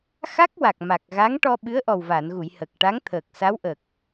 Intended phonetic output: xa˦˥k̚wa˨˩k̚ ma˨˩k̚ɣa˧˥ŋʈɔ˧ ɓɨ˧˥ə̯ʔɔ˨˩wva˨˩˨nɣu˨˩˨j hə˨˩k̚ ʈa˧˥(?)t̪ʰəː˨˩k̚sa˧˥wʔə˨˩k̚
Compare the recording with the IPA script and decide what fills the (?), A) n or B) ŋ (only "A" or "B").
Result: B